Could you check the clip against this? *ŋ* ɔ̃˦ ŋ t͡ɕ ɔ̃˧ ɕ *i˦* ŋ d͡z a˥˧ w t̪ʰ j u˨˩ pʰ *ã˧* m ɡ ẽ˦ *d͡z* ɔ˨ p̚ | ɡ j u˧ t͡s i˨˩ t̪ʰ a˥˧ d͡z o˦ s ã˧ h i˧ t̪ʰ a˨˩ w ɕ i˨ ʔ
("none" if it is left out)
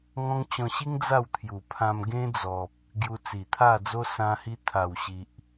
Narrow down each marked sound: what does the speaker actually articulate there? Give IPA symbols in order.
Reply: ŋ, i˦, ã˧, d͡z

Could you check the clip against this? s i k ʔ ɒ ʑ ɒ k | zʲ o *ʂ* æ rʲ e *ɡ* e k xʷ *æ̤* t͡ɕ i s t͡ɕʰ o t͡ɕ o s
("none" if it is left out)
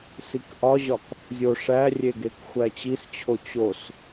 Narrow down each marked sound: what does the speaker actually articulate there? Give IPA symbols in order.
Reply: ʂ, ɡ, æ

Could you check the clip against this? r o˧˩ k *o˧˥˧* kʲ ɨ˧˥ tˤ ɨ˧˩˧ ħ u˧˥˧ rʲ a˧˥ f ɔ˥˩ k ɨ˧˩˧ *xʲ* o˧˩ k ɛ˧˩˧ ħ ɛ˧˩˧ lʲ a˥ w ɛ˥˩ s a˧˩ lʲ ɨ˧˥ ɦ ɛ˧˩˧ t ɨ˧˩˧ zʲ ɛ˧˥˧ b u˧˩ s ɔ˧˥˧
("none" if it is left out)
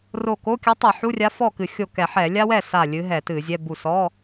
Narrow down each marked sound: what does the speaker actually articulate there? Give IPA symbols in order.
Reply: o˧˥˧, xʲ

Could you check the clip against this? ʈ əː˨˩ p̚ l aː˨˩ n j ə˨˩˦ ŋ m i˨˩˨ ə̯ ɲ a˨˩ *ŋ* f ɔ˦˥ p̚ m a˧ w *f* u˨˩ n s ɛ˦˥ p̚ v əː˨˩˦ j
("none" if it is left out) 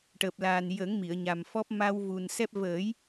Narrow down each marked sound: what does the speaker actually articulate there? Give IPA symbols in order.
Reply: m, v

